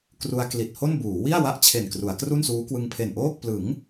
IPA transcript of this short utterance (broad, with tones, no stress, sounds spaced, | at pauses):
k r u˧ a̯ k l i˨˩ t̚ h o˥˩ n b uː˩˦ w i˥˩ a̯ w a˦˥ ʔ t͡ɕʰ e˨˩ n k r u˩˦ a̯ k r u˥˩ n s uː˦˥ k w ɯ˧ ŋ pʰ e˨˩ n ʔ oː˥˩ k̚ p l ɯ˩˦ ŋ